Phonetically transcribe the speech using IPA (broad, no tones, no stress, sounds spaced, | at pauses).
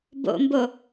b o̰ m b o